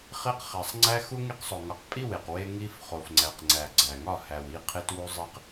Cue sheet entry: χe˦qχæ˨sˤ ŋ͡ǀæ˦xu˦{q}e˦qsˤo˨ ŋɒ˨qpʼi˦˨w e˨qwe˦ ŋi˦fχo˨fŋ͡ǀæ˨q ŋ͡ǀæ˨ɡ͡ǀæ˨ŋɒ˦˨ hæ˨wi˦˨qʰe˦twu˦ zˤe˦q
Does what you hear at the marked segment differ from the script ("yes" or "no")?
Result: yes